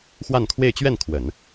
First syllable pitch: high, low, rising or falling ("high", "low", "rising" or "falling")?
falling